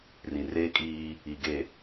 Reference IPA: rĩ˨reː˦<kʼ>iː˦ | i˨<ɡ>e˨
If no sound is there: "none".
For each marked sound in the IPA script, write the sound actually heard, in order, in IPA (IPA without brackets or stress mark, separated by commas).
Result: kʼ, ɡ